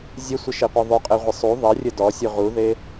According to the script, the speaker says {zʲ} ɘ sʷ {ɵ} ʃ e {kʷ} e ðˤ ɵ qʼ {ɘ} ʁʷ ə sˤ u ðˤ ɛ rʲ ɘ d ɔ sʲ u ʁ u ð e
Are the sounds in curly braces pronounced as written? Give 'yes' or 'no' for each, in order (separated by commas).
yes, no, no, yes